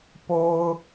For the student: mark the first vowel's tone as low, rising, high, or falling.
high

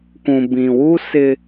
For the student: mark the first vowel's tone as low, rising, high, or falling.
low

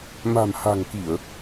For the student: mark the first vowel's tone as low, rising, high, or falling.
low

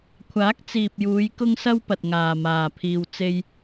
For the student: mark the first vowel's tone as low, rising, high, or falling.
rising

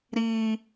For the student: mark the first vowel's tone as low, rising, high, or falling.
high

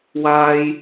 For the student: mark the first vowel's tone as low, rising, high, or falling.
high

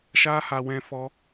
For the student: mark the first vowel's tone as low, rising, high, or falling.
high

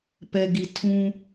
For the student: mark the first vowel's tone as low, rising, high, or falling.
low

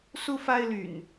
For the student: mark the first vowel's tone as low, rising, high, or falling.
high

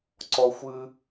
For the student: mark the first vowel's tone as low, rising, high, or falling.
high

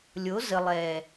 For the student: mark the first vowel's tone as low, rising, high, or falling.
rising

